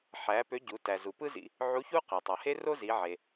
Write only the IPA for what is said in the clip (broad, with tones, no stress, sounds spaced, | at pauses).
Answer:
ħ æ˩˧ p ø˧˥ ɟ u˩˧ t æ˩ z u˩ p ɯ˥ z ḭ˧ | ʕ u˧˥ ç u˥ q e˩ tˤ ɯ˩ h e˥ r o˥ z i˩˧ ʕ e˩